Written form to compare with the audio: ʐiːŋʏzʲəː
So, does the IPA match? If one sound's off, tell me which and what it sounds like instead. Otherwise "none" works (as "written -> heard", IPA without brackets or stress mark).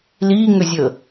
ʐ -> l